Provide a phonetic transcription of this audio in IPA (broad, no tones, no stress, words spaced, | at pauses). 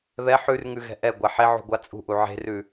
βɛ ħʉrŋʉɣɛ̤ ʔɛɡʷa ħeʕṳɡʷa t͡sʼṳʔu ʕe̤rʉ